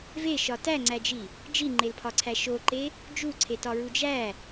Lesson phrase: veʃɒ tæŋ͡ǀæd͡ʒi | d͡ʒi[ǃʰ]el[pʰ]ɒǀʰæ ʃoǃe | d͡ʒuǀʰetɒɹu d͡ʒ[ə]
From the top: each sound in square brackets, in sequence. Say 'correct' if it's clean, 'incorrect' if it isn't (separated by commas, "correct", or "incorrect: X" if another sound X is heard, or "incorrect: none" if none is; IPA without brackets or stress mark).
incorrect: ŋ͡ǃ, correct, incorrect: æ